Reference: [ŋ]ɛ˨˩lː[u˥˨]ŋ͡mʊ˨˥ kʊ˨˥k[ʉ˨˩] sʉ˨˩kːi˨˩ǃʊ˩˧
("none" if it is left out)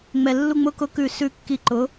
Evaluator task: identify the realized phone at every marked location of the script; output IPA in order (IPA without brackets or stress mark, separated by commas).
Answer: ŋ͡m, u˧, ʉ˨˩